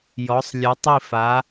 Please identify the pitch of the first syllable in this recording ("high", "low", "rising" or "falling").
rising